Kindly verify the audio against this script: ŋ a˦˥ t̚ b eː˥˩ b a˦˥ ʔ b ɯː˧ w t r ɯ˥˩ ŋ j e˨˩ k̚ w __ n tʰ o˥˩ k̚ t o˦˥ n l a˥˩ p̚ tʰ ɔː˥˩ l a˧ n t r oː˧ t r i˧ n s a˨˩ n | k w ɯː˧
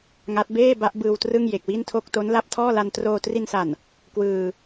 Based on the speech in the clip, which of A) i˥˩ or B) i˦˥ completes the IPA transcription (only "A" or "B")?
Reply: A